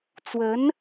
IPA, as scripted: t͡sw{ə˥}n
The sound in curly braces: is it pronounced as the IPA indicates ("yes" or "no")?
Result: no